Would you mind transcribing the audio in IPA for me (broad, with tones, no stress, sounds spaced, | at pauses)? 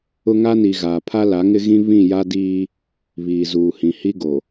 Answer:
ʊ˦ ŋ a˦ n i˨ ɣ aː˨ pʰ a˦ l a˨˦ ŋ ɪ˦ ɣ ĩ˦ β ĩ˦˨ j a˦ d iː˦ | β iː˨ z uː˨ h ĩ˨ h i˦ ɡ o˨